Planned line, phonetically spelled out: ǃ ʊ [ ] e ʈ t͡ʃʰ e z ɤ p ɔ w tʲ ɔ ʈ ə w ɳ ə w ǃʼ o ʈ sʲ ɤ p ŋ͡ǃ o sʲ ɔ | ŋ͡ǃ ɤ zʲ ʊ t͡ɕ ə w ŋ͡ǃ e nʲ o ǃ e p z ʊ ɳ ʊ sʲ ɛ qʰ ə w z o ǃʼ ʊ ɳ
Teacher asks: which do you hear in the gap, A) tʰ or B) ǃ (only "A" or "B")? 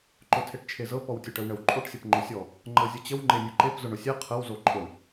A